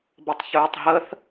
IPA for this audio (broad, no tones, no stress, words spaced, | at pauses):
bətˤçɵːtˤɦəθ